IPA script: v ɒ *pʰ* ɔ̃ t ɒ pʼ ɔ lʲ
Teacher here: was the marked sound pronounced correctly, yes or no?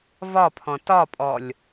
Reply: yes